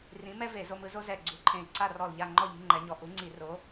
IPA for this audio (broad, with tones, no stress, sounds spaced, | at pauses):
r ĩ˨˥ m ɛ˥ v e˧˩˧ z o˧ m ɯ˧ z o˥ z ɛ˧˩ ɡ͡ǀ u˨˥ ǃʰ ẽ˧˩ i̯ ǀ a˥˨ r ɔ˧˩ l ʎ a˥˨ ŋ͡ǃ ɔ˥˨ ʎ i̤˧ ŋ͡ǃ ɛ˨˥ ɲ ɔ˧ ʔ u˨˥ ŋ͡ǀ i˧˩˧ r o˨˥